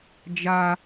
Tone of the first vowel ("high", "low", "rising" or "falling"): high